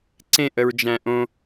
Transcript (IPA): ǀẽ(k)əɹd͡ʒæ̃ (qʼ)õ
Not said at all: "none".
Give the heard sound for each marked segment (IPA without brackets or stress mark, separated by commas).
ʔ, ʔ